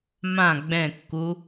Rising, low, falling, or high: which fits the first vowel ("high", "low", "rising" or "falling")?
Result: falling